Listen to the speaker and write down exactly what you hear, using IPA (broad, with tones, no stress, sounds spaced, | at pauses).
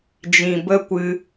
d͡ʒ ĩ˨ b ə˦ kʷ ɨ˦